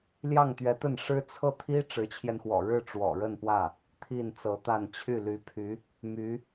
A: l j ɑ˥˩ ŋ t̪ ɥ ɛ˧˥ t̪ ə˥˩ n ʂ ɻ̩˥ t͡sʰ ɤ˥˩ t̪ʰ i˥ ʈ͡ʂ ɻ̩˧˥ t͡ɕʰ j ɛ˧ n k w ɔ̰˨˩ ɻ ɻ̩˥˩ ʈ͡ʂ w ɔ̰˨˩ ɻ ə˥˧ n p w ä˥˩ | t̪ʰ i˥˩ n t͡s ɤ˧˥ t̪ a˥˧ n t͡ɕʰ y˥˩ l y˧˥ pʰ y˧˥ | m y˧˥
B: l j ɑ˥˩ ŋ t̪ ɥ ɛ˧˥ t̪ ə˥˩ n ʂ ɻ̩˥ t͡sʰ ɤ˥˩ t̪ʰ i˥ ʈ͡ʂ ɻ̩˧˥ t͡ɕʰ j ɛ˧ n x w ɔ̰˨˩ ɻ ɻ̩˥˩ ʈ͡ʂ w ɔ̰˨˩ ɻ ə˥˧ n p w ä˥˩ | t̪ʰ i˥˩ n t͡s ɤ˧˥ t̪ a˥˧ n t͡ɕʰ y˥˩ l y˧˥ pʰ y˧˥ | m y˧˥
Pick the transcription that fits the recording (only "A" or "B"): B